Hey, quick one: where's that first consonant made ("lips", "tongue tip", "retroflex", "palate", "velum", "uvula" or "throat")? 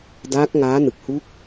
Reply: tongue tip